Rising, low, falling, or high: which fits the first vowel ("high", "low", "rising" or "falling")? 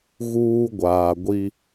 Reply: high